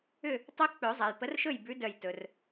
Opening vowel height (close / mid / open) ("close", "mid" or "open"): close